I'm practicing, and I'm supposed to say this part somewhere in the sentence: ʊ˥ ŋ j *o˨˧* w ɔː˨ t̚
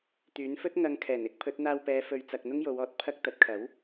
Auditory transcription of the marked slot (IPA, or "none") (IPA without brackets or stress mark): o˨˧